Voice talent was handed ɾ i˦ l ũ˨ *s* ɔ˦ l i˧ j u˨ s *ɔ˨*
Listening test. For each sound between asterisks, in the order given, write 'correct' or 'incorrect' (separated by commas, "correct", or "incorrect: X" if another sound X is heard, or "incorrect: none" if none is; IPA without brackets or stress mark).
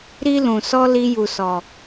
correct, correct